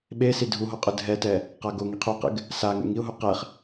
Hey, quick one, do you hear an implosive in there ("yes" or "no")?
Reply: yes